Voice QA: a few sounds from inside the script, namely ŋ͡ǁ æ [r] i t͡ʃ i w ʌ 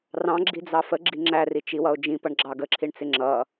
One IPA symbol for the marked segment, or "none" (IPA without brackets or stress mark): r